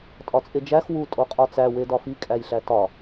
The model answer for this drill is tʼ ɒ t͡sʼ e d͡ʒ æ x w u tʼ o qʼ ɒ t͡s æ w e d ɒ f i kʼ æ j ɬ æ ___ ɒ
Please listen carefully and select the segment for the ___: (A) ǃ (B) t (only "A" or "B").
B